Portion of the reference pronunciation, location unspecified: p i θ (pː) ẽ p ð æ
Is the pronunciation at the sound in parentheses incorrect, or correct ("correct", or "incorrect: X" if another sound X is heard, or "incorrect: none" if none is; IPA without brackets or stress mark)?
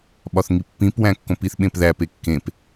incorrect: ɓ